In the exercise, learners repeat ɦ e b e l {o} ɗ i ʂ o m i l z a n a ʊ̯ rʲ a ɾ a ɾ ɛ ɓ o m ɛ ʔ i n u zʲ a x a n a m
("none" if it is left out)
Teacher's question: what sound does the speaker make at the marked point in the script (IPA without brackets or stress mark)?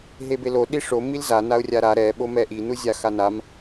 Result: o